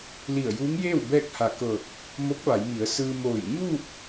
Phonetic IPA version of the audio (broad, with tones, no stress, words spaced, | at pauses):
li˧˩ə̯juː˧˥ŋjeː˥˨w bɛː˥˨k̚ha˧˩kɤː˧˩k̚ | mo˧˥k̚ʋa˩˧jmi˩˧ə̯ sɯː˧moː˧˩j ɲuː˥˨k̚